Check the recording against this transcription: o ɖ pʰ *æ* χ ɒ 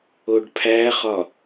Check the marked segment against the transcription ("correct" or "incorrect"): correct